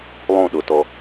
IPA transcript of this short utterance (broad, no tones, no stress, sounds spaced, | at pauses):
lˠ õ ɗ ʊ t ɔ